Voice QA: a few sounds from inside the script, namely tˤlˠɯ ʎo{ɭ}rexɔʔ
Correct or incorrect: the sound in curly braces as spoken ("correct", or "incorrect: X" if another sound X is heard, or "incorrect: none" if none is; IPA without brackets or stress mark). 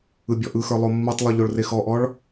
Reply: correct